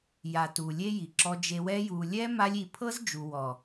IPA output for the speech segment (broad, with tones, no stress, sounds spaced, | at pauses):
j a˨ t u˨ lʲ e˧ j i˨ ǁ ɔ˧ d͡ʒ e˧ w ɛ˦ j u˨ lʲ ɛ˦ m a˦ lʲ i˧ pʰ ɤ˦ z d͡ʒ u˨ w ɔ˨